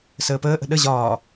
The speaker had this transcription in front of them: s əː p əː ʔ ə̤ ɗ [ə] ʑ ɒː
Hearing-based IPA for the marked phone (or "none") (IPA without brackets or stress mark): ə